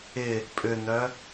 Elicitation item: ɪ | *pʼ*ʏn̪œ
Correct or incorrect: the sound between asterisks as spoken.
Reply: correct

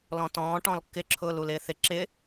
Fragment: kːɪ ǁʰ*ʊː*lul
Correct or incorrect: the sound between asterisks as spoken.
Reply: correct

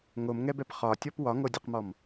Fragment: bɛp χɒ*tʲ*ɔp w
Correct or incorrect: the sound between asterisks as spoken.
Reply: correct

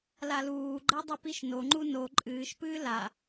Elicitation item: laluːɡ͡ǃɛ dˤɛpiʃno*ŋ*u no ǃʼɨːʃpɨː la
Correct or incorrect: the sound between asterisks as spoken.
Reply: incorrect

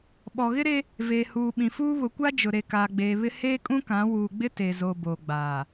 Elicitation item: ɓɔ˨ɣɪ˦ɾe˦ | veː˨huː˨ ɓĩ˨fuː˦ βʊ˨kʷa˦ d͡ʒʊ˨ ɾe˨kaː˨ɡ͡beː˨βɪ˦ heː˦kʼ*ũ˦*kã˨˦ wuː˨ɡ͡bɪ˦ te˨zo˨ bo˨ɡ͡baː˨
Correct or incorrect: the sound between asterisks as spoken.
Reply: correct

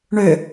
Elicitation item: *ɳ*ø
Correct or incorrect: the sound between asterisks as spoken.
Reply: correct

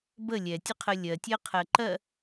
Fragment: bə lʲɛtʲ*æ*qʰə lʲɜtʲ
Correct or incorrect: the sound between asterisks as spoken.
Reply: incorrect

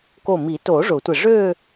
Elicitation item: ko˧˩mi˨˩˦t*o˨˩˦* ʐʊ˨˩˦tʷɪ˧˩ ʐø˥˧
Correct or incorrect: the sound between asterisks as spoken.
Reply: correct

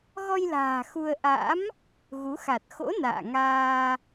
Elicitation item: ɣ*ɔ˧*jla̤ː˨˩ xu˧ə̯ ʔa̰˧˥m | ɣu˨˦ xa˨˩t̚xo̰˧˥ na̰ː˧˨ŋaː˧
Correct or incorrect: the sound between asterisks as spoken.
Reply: correct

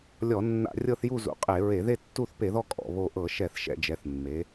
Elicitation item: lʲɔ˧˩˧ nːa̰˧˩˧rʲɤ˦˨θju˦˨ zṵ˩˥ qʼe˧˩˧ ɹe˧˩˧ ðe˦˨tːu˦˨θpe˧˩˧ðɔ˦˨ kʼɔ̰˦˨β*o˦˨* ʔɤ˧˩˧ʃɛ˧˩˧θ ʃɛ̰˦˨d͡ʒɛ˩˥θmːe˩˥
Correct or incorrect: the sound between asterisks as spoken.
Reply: correct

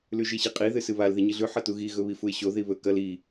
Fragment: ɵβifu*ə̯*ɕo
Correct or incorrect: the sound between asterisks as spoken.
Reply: incorrect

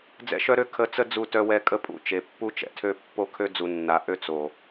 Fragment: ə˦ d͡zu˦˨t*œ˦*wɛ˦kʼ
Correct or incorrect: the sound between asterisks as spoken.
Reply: correct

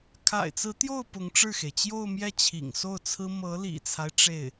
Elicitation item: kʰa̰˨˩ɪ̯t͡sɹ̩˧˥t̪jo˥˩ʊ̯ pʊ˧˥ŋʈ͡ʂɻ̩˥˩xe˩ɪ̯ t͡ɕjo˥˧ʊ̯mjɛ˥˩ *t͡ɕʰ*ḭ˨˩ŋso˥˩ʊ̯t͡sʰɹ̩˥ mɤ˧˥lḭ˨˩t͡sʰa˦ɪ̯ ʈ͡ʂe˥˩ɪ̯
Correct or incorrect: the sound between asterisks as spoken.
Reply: correct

